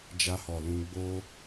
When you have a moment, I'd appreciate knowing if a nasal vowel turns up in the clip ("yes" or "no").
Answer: yes